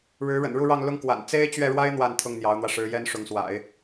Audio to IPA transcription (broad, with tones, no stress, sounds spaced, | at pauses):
ɻ ɻ̩˧˥ ɻ ə̰˨˩ n ɻ u˥˧ ɻ ɑ˥˧ ŋ l ʊ˥˩ ŋ k w a̰˨˩ n t͡s e˥ ɪ̯ t͡ɕ ɥ ɛ˥˩ ɻ w a˥ ɪ̯ n̪ w a˥˧ n t̪ʰ ʊ˥˩ ŋ n̪ j ɑ˧˥ ʊ̯ n̪ w ä˧ ʂ ɻ̩˧˥ j ɛ˥ n ʂ ʊ˧˥ ŋ s w a̰˨˩˦ ɪ̯